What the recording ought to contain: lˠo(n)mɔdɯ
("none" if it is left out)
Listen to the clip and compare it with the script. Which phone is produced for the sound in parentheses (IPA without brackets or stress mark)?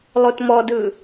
t